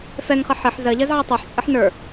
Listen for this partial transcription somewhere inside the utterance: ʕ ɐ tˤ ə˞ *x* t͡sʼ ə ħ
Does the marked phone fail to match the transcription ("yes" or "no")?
yes